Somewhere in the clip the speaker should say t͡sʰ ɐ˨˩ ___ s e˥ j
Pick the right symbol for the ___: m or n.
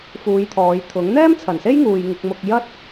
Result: n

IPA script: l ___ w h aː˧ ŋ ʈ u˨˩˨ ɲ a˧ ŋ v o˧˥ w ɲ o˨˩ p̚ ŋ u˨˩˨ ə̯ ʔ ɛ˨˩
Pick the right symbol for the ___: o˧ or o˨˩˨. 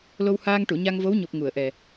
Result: o˧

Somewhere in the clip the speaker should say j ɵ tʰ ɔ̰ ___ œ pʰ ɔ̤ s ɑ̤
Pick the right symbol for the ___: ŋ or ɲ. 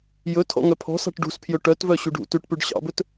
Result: ŋ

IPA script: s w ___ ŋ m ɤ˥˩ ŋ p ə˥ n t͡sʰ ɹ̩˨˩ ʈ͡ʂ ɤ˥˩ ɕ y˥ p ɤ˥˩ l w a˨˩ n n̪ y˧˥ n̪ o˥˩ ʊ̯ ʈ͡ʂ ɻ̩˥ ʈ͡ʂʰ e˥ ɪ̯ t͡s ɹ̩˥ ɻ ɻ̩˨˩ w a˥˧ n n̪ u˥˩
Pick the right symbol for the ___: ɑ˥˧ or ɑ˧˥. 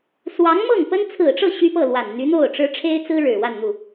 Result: ɑ˧˥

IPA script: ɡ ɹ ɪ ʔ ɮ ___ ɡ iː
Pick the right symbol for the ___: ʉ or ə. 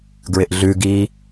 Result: ʉ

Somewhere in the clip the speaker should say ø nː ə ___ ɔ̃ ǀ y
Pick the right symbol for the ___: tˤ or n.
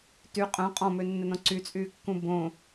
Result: n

